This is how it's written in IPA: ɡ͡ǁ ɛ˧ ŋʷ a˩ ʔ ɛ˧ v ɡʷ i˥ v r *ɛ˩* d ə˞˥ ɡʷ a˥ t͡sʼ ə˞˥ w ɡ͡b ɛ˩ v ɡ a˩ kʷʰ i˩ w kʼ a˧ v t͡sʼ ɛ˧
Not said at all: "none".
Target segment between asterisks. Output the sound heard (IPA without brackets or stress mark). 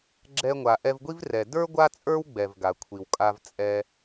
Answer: ɛ˩